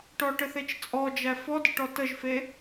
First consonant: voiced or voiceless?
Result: voiceless